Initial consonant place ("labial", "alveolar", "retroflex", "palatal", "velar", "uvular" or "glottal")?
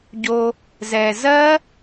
palatal